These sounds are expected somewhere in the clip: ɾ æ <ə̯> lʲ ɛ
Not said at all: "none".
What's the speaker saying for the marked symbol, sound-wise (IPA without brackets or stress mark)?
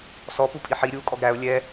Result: ʊ̯